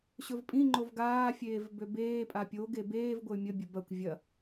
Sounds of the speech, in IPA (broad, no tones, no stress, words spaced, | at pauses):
ɕɵvpʼĩŋ͡ǃov ɡaːfʲeːv bøbeːpʼa pʲoɡe beːvɡʷəy̯ mʲəbʲə bɐkʷ vʲɐ